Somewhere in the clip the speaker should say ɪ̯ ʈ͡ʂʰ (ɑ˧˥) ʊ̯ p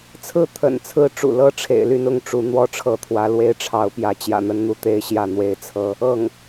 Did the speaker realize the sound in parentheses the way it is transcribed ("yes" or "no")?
yes